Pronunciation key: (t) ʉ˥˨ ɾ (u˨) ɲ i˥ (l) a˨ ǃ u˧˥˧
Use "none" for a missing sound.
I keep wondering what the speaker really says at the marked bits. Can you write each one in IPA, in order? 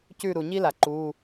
c, u˨, l

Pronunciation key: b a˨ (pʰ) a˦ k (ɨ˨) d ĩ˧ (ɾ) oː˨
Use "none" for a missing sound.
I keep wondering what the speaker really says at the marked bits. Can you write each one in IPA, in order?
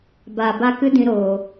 b, ɨ˦, ɾ

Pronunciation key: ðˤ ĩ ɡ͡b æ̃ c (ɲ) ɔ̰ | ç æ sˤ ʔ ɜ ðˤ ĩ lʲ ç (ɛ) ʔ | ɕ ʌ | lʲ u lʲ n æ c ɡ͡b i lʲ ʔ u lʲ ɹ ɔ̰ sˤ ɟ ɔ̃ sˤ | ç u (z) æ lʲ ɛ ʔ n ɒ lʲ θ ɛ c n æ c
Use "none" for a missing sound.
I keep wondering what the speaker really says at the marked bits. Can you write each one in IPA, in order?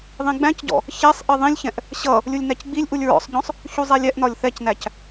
ɟ, ɛ̃, zˤ

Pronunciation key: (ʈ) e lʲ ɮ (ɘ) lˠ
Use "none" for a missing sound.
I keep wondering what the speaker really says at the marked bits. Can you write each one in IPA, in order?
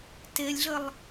t, ɘ

